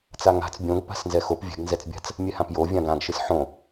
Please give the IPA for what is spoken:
t͡s a ŋ a̤ t͡s bʲ õ ɡ p a̤ s n z ɛ x o p vʲ ɛ̤ ɡ n z ɛ t͡s bʲ a̤ t͡s | mʲ ɛ h ã p j o vʲ ã ɡ ã ɡ ʃ ɨ s ħ õ

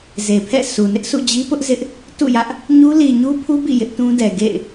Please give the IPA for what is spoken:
z e˨ pʰ ɛ̰˦˨ sʰ u˨ n ɪ˦ ʔ sʰ ṵ˦˨ d͡ʑ i˦ p ʊ˦ ʔ z ɪ˦ ʔ | t ṵ˦˨ j ä˦ ʔ | ɲ u˦ l i˨ ɲ u˦ pʰ u˦ b ḭ˦˨ j ɪ˦ ʔ t ũ˦ d ɛ˨ ɡ ḛ˦˨ ɪ̯

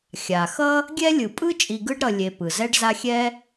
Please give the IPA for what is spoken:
xʲ a˩ x ʌ˥ | ɡʲ ɛ˥ lʲ ɯ˨ pʼ ɯ˥ t͡ʃʼ i˨ ɡ ɯ˥ ɖ ɾ ʌ˨ lʲ e˨ p ɯ˩ z ɛ˦ ɖ z a˦ xʲ ɛ˥

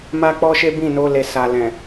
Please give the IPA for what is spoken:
m a˦ k͡p ɔ˦ ʃ e˦ b ĩ˦˨ n o˧ l e˨ s a˨ l ɛ̃˨

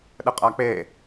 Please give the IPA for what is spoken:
ɗ ə qʼ a k͡p e

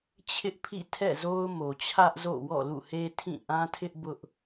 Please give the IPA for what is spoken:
t͡ɕʰ ɪ˦ ʔ pʰ ḭ˦˨ tʰ ɛ̰˦˨ z o˦ ʊ̯ m o˨ t͡ɕʰ ä˦ ʔ z o̰˦˨ w ɔ̰˦˨ l ṵ˦˨ h e˦ tʰ ĩ˦˨ ʔ ã˦ tʰ ɪ˦ ʔ b ʊ˦ ʔ

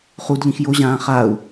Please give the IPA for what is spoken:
χ u d ʎ ĩ x j o ʑ ãː χ a u̯

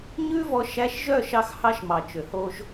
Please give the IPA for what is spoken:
ɲ ʉ˦ v ɔ˧ ʃ æ˧ ʃ ʒ œ˦˨ ʃ ɑ˦ x h ɑ˦ ʃ m ɑ˨ t͡ʃ ø˨ h o˦ ʒ

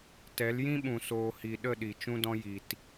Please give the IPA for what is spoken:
t ɛ˨˦ l j ĩ˦ ɓ ũ˨ s oː˨ h i˨ ɗ ə˦˨ ɗ i˨ t͡ʃ ũ˧ d ɔ̃˧ j i˨ t

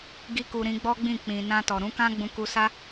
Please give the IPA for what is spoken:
ɡ i˦ k u˧ ɾ ĩ˧ ɡ͡b ɔ˦ ɡ͡b ĩ˦˨ k͡p ĩ˨ n ã˧ t ɔ˨ ɾ ũ˨˦ k ã˦ ɡ͡b ũ˧ k u˧ s a˦

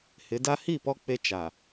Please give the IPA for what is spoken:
h ɪ˨˦ d a˦ h i˦˨ p ɔ˦ k͡p e˦ t͡ʃ a˨

